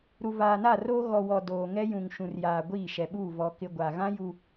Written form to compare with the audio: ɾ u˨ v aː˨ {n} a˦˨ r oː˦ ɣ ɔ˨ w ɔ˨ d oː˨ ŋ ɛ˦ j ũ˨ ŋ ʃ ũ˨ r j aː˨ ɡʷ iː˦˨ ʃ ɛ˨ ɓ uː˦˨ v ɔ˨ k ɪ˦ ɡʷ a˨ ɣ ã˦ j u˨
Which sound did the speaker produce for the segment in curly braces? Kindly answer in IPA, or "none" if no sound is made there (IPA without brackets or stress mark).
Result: n